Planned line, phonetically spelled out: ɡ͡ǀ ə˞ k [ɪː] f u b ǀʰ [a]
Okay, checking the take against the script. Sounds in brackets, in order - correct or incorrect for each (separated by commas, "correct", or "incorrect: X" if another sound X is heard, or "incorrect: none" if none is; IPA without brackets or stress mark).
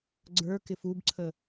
incorrect: ɪ, incorrect: ə